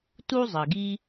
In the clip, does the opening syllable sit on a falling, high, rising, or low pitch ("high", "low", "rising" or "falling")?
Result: high